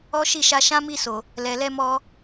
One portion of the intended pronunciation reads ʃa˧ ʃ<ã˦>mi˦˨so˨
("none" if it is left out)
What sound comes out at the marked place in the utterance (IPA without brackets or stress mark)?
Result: ã˦